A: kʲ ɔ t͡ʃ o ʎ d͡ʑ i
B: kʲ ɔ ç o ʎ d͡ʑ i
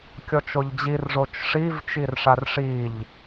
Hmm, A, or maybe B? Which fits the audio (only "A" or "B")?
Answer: A